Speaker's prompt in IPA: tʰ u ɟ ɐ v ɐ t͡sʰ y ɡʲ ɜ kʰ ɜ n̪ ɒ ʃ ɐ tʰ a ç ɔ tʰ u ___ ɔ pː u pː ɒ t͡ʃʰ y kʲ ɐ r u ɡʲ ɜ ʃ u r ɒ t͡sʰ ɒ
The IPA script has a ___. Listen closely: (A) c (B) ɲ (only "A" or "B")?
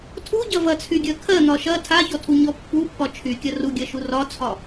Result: B